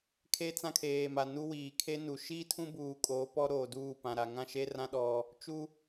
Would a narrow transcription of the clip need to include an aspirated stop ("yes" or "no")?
yes